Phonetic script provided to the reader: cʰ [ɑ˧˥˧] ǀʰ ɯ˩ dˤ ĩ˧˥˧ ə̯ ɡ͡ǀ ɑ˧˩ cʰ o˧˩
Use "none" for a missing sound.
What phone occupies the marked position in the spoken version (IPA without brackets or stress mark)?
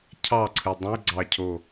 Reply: ɑ˥˨